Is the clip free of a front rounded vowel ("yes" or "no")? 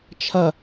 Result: yes